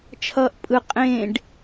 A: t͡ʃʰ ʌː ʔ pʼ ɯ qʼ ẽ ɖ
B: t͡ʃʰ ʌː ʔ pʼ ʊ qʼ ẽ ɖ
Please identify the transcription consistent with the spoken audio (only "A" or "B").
A